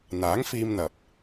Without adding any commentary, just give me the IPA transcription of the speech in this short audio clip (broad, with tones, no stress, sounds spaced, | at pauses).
n̪ aː˨˥ ŋ f iː˧ m n̪ ɐ˨ p̚